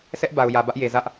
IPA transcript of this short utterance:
s ɛ˦ ʔ b a˨ ʊ̯ j ä˨ b ä˦ ʔ j e˨ z ä˦ ʔ

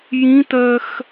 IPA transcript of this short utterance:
j ĩ t ɜ x

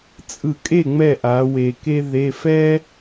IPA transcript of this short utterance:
t͡sʼ ɯ˧˩˧ kʼ e˥˩ ŋ͡m ɛ˥˩ ʔ a˩˧ w e˨˩ k e˥ ð e˧˥˧ f ɛ˥

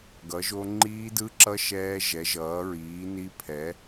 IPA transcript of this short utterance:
ɡ ʌ˩˥ ʒ o˦˥ ŋ͡ǃ iː˦˥ d ɯ˦˥ ǁ ʌ˦˥ ʃ ɛː˦˥ ʒ ɛ˩˥ ʒ ʌː˩˥ ɹ iː˩˥ n i˦˥ pʰ ɛ˩˥

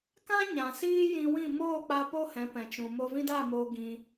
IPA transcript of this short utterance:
k ã˦ ɲ ã˨ s iː˦ j ĩ˧ w ĩ˦˨ m oː˦˨ k͡p a˧ p o˦ h ɛ̃˨˦ p ɛ̃˨ t͡ʃ ũ˨ m o˧ v ĩ˦ d a˦˨ m oː˧ ɡ ĩ˧

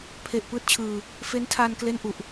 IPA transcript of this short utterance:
pʰ e˨˩ ʔ p ɯː˥˩ t̚ t͡ɕʰ ɯː˧ | f e˦˥ n tʰ aː˧ n k l e˥˩ n ʔ u˨˩ ʔ

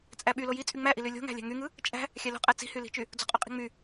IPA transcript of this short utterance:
t͡sʼ æ ɓ y l o j i t͡sʼ y ŋ͡m æ ʔ i l y lʲ o̤ ŋ æ̤ lʲ æ̤ ŋ y ŋ ɯ | t͡ʃʼ æ̤ | xʲ æ l o̤ qʼ æ t͡s i̤ h y l i̤ t͡ʃ y | d͡z o̤ qʼ o qʼ i̤ ŋ͡m y

